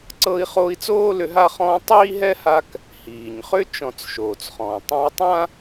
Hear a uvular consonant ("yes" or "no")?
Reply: yes